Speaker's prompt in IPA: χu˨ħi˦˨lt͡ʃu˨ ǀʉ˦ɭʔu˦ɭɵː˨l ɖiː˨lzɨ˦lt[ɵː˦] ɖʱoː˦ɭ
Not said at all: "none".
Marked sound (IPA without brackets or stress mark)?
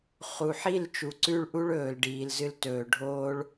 ɵː˨